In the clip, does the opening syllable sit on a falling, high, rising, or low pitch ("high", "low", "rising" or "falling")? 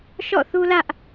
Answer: falling